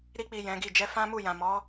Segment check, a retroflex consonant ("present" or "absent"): absent